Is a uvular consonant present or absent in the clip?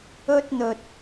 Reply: absent